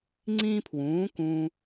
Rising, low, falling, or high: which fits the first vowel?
high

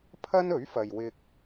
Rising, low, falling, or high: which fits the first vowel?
high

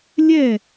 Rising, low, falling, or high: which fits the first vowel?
falling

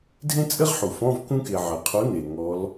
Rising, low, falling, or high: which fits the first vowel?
high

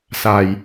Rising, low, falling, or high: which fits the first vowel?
low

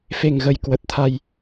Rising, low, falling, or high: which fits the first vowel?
low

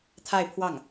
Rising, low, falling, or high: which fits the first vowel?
falling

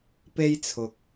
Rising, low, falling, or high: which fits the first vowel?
high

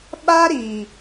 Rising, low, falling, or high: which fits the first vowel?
high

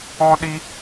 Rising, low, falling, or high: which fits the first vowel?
high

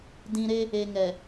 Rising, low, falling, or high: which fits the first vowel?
low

